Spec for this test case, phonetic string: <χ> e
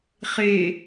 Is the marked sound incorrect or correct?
correct